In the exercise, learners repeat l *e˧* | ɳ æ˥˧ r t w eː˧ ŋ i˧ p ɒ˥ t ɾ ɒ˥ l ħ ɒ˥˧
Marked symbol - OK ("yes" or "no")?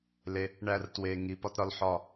yes